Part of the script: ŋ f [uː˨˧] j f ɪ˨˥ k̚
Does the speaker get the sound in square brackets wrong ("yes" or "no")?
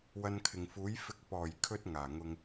yes